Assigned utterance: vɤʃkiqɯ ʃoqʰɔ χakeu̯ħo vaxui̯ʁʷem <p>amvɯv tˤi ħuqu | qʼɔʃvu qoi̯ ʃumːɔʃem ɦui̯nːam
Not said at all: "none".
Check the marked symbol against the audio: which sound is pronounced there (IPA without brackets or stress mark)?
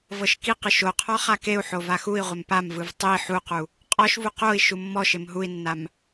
p